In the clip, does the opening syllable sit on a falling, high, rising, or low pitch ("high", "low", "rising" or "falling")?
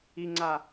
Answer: low